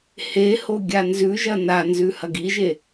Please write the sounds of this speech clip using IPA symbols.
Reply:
h e h o ɡʲ a n z ʉ ʒ ɐ n a n z ʉ h ɐ ɡ i ʒ e

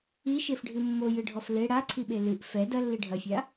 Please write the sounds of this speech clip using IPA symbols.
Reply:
i ʃ e f ɖʱ ɨ mː o j ɨ ɖʱ ɔ f l e ɽ a ǀʰ i ɓ e l ɨ ʔ f ɛ d ɐ lː i ɖʱ ɐ fʲ a

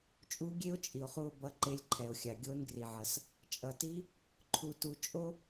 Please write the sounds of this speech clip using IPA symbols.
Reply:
t͡ʃʼ u˧˥ ɡʲ e˥ o̯ t͡ʃʼ i˩ o̯ χ u˧ o̯ b ʌ˧˥ ǃ e˧˥ lʲ ǃʰ ɛ˩ o̯ xʲ a˩ ɡʲ o˧˥ n ɡ r i˩ ʕ ʌ˩ s | t͡ʃʼ ʌ˩ t i˧˥ | ǃʰ u˧ t u˧ t͡ʃʼ o˥

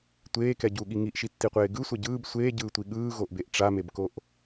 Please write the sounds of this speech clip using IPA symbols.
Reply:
tʷ eː k ɛ ɟ u ɠ i ŋ i ʔ ʃ i tː i qʷ eː ɡ ɯ sʷ ɛ ɟ ɯː b sʷ eː ɟ ɯː tʷ i ɠ ɯː ɣ o ʔ b e ʔ ʈ͡ʂ a m e b k o ʔ

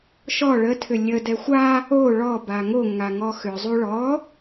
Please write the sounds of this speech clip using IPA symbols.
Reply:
ʃ ɔ ɭ ə tʰ ʏ lʲ ə d ɛ xʷ a | o ɭ ɔ b a ŋ o ŋ a ŋ ɔ x ʏ zˤ u ɭ ɔ

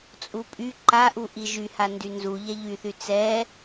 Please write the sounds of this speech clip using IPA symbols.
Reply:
t͡sʼ u pʼ y ǃ a ʔ u ʔ i ʒ y h a n d y n z u ʎ ɛ ʎ y θ y t͡s ɛ

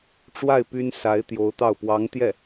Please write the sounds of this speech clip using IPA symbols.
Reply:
ʈ͡ʂ w a˥˩ ɪ̯ p y˥ n s a˧˥ ɪ̯ t̪ j o˧˥ ʊ̯ t̪ ɑ˥˩ ʊ̯ p w ɑ˧˥ ŋ t̪ j ɛ˥˩

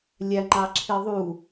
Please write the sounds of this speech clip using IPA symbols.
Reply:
lʲ æ ŋ͡ǃ ɑ ǁʰ i ðˤ u

